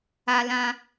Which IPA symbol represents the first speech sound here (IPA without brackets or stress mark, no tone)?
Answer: a